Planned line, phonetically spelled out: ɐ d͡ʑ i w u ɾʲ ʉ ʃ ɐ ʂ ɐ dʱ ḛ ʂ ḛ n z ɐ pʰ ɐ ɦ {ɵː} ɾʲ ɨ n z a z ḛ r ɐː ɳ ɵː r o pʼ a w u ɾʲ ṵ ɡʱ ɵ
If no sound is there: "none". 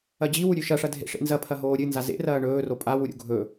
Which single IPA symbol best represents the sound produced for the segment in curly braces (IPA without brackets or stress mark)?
oː